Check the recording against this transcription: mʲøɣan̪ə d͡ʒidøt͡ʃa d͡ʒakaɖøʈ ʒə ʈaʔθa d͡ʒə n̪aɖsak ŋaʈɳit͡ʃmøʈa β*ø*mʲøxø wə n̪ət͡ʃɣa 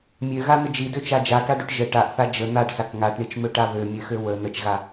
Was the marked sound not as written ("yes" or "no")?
no